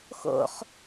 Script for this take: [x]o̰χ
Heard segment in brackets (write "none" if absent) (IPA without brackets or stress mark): x